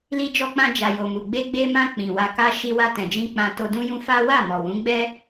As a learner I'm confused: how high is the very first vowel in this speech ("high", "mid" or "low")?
high